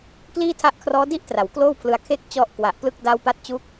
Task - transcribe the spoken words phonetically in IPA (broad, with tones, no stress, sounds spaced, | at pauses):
k l iː˥˩ tʰ a˥˩ ʔ kʰ r ɔː˦˥ d i˥˩ ʔ t r a˩˦ w k l oː˥˩ w pʰ l ɯ˧ a̯ kʰ e˥˩ k̚ t͡ɕ ɔ˦˥ ʔ k w a˨˩ ʔ p l ɯ˥˩ k̚ d a˦˥ w p a˦˥ t̚ t͡ɕ u˦˥ k̚